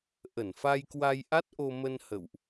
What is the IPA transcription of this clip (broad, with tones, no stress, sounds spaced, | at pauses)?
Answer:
ʔ ə˧˩ n f a˧ j k w a˧ j ʔ a˦˥ t̚ ʔ o˧ m ə˧ n h ə̰˧˨ w ʔ